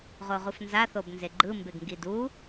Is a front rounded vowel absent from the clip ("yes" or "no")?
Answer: yes